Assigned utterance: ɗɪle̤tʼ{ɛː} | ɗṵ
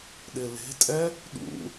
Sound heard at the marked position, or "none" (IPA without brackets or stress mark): ɛ